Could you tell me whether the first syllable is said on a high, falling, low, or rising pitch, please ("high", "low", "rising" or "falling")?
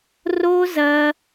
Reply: high